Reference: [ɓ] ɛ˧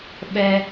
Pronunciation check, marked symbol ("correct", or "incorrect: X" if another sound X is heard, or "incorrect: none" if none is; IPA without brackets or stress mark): correct